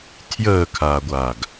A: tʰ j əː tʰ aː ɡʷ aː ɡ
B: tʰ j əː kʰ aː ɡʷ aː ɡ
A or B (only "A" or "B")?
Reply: B